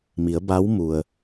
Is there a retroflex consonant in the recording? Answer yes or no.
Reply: no